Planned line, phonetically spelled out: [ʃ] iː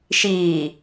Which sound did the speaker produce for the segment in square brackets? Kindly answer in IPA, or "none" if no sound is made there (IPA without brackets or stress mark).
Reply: ʃ